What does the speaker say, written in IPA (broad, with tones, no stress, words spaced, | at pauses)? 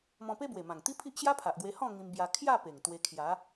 mɔ̃˧pe˦ bwe˨˩mã˨˩ŋt̪i˦pʰi˦ʔ ɕja˦pʰa˨ʔɡwe˧ hɔ̃˥˧ ŋĩ˧mbja˧ kʰja˥˧ pe˨˩ŋt̪we˧ kʰja˨˦